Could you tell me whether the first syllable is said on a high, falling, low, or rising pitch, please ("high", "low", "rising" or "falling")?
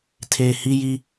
low